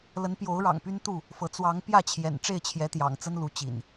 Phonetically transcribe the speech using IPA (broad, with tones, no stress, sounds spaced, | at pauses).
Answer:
l ə˨˦ n p j o˨˦ ʊ̯ ɻ ɑ̰˨˩ ŋ p y˦ n t̪ u˥˨ | f ɤ˨˦ t͡s w ɑ˨˦ ŋ p j ä˥˨ t͡ɕʰ j ɛ̰˨˩ n ʈ͡ʂ e˥˨ ɪ̯ t͡ɕʰ j ɛ˨˦ t̪ j ɑ̰˨˩ ŋ t͡s ə˦ n l u˨˦ t͡ɕ ḭ˨˩ n